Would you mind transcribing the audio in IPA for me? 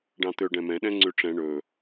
ɖ ɑ̃ t̪ ø ɖ ɛ̃ m ɛ̃ ɗ ɛ̃ ŋ͡ǀ ʉ ʈ͡ʂ ɛ̃ ɳ ɵ

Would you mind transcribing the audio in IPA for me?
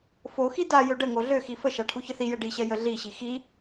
f o x i d a j ø ɖ ə ŋ o ɮ ø x i f ə ʃ a ʈʰ u ç ə θ i j ɛ ɖ i ɕ ɛ j ə ɮ i ɕ i x i

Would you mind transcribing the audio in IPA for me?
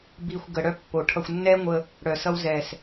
b i˨ xʷ ɡ ə˨ ɽ œ˦ pː o˨ ʈʰ ʌ˧ xʷ nː ɛ˦ ŋʷ ə˦ | ɽ œ˨ s ʌ˦ w z ɛ˨ s

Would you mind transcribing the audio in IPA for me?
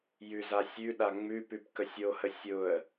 j ʉ z a sʲ ʉ ɗ a ŋ͡m ʉ p ʉ p k ə sʲ o h ə sʲ ʊ ə̯

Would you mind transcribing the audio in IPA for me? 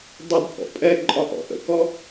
dˤ ɪ d pʼ ɔ̰ pʼ ɛ ǃʼ ɒ ʔ ɔ̰ ʔ ə̰ k ɔ

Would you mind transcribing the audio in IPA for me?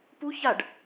p u ç a ɖ

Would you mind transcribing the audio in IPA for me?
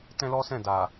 t ɛ̃˦ l ɔ˦ s ɛ̃˦˨ d a˨

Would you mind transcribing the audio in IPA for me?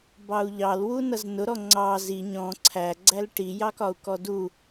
b ɑ u̯ ʎ ɑ l w u n ʌ z n ʊ ɾ ɔ ŋ͡ǀ ɑ z i ɲ ɔ̃ ǀʰ æ ɡ͡ǀ æ l ʈ i j ɑ k ɒ u̯ k ɔ d u

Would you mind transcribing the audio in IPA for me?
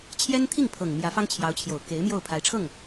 t͡ɕʰ j ɛ˥ n t̪ʰ i˥˩ ŋ pʰ ɤ˨˩ ŋ m j ä˧˥ f ɑ˥ ŋ t͡ɕʰ j ɑ˧˥ ʊ̯ t͡ɕʰ j o˨˩ ʊ̯ k e˧˥ ɪ̯ m j o˥˩ ʊ̯ pʰ a˧˥ ɪ̯ ʈ͡ʂʰ ɤ˥˩ ŋ

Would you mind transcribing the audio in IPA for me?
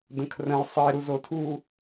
d ə̃ kʰ r ə̃ j sˤ i ɾ u z o tʰ u

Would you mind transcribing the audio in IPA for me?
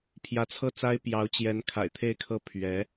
pʰ j ä˧˥ t͡sʰ ɤ˥˩ t͡s a˥ ɪ̯ p j ɑ˧˥ ʊ̯ t͡ɕ j ɛ˧˥ n kʰ a̰˨˩ ɪ̯ t̪ʰ e˥˧ ɪ̯ kʰ ɤ˥˩ pʰ ɥ ɛ˧˥

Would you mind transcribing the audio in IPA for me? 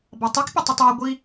b ɑ tˤ e k pʲ ɯ tˤ y tˤ e ɡʷ i

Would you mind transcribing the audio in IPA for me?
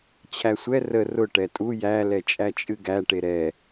t͡ɕʰ æ sʷ ɛ r ə r ʊ ʈ ɛ tʼ u j æ l ɛ t͡ʃʼ æ t͡ʃʼ ɨ ɡ æ ʈ e ɾ ɛ

